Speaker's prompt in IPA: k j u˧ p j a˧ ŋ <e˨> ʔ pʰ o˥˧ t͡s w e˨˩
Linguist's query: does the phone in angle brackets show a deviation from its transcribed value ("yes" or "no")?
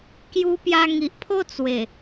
yes